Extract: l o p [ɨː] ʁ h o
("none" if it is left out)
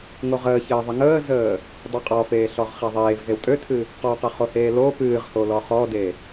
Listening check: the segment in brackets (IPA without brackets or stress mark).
ɨː